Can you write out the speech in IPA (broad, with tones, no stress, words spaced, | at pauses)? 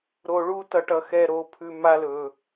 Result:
ɾo˧ɭu˦ tʌ˧ʈʌ˧ xɛ˧ɾo˨˦pʰʉ˧ ma˦lɵ˧